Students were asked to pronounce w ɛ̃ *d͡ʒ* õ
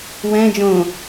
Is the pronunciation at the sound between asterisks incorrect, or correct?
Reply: correct